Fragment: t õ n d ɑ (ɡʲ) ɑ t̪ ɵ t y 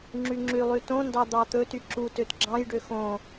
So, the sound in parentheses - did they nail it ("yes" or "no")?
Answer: no